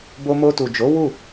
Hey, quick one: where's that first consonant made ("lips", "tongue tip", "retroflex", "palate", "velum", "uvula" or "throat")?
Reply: lips